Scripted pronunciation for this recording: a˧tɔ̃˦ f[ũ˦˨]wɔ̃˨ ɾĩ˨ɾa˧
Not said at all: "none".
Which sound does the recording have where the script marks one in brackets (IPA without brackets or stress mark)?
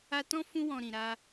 ũ˧